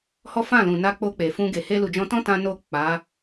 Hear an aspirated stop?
no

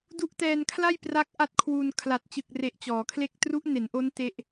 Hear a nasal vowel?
no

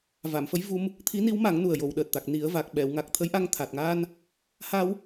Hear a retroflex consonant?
no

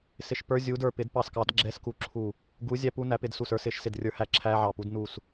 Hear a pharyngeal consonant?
yes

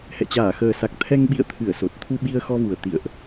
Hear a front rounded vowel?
no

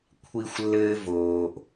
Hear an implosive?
no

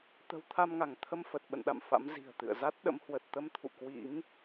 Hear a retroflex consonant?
no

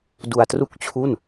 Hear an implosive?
no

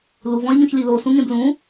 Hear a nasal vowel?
yes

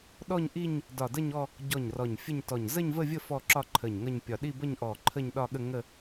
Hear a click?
yes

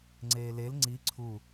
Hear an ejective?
no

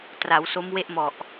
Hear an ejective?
no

